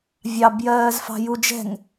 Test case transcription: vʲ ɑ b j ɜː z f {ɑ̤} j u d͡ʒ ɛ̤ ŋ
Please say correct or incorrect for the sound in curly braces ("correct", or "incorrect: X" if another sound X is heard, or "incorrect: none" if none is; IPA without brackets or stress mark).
correct